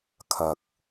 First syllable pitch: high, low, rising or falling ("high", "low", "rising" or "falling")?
low